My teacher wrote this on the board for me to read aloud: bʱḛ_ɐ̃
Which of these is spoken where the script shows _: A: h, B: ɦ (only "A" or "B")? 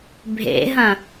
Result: B